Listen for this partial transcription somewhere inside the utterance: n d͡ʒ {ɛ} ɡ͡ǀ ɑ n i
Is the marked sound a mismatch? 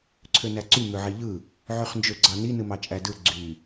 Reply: yes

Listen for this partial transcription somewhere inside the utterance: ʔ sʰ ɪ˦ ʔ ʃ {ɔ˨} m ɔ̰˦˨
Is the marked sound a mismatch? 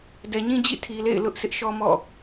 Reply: yes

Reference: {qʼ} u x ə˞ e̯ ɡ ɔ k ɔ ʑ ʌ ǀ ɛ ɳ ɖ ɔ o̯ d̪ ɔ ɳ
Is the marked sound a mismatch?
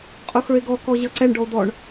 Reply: no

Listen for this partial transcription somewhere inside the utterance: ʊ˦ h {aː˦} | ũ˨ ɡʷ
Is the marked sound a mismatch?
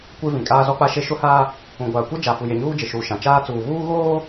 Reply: no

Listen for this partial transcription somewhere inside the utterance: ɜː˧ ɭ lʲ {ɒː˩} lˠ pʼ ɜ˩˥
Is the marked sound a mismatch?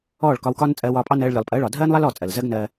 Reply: yes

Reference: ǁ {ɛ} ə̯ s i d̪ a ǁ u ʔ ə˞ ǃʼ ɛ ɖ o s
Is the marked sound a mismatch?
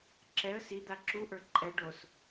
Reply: no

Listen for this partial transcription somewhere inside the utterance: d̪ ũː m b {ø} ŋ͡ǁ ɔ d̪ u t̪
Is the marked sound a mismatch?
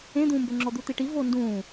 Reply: no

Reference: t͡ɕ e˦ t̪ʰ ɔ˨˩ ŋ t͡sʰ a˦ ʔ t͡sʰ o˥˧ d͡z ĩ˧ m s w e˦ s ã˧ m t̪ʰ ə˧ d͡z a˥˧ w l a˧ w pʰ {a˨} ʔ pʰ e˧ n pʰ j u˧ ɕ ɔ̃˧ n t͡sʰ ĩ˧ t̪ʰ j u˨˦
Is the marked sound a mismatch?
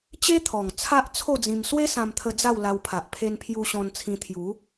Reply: no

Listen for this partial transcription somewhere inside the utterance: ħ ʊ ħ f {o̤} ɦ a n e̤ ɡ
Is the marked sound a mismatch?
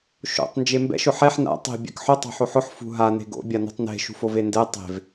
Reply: yes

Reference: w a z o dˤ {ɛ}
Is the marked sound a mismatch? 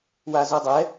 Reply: no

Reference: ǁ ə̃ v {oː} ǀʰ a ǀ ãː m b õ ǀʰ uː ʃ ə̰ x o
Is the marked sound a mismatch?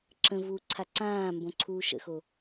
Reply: yes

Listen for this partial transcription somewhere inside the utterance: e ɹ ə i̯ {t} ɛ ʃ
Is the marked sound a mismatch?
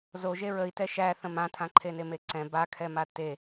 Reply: no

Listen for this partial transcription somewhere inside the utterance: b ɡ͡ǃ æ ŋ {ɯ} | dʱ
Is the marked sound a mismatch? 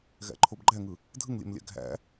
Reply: no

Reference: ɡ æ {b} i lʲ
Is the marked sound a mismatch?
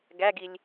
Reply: yes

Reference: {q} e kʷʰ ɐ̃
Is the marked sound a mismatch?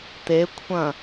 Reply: yes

